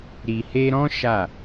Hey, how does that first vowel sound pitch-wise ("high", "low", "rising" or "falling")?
low